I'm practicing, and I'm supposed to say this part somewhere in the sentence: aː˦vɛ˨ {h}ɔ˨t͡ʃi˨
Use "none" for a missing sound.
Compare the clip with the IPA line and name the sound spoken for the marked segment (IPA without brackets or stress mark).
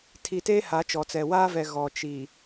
ɣ